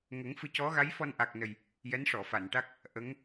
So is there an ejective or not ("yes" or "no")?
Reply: no